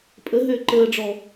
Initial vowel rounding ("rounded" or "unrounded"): unrounded